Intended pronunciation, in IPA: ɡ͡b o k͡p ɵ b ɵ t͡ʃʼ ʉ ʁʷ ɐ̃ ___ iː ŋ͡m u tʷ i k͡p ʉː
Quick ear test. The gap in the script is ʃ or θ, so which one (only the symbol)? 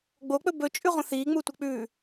θ